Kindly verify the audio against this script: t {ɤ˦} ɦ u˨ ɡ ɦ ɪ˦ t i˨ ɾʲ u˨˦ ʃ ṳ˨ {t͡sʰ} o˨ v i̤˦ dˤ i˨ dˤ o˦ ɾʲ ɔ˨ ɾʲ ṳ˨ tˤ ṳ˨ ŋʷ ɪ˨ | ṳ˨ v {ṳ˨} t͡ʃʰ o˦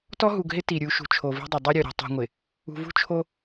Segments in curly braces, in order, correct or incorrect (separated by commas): incorrect, incorrect, incorrect